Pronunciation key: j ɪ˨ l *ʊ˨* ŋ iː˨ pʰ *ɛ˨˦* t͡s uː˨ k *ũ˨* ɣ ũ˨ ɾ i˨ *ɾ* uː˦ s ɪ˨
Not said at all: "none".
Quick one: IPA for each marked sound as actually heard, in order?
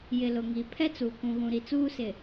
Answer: ʊ˨, ɛ˦, ũ˨, t͡s

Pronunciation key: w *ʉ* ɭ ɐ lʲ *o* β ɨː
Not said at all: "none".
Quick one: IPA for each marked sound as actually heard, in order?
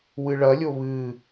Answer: ɨ, o

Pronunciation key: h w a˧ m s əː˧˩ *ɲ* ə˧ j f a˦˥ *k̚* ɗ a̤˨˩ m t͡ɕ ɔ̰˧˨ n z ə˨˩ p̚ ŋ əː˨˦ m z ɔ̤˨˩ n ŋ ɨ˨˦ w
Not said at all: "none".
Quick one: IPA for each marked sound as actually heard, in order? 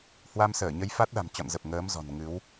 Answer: ɲ, t̚

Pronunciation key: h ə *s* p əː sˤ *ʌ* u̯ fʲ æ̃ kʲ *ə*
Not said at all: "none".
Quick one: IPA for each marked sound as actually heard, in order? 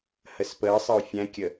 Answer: s, ʌ, ə

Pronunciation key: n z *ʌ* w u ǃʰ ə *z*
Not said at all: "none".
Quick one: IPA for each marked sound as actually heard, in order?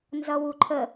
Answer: ʌ, none

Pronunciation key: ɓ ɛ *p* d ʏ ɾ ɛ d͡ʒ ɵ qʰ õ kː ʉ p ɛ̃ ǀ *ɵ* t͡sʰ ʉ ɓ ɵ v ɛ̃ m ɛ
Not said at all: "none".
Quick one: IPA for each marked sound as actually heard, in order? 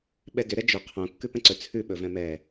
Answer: none, ɵ

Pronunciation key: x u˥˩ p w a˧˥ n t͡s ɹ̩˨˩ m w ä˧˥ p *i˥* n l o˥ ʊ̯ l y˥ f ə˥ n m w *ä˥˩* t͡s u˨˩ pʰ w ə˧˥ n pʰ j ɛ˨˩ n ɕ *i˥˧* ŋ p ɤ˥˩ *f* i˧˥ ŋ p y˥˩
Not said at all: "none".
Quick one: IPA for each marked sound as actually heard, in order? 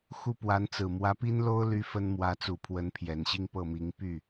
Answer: i˥, ä˧˥, i˥˧, m

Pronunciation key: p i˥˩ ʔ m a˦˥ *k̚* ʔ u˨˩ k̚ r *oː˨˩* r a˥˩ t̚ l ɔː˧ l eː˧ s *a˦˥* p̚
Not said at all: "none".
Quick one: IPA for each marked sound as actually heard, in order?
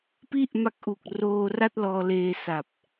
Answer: k̚, oː˧, a˨˩

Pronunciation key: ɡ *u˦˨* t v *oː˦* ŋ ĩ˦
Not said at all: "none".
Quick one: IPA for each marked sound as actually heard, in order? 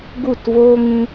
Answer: u˦˨, oː˦

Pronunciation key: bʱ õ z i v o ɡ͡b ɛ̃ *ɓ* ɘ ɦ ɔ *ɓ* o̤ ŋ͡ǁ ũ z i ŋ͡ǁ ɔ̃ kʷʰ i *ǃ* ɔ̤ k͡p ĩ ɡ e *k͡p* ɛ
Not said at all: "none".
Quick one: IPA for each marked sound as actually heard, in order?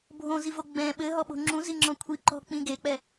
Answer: ɓ, ɓ, ǃ, k͡p

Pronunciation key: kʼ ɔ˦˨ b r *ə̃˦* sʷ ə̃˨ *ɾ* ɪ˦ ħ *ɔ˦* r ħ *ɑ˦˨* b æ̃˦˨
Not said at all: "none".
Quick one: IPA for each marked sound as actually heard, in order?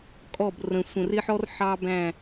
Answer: ə̃˨, r, ɔ˦, ɑ˦

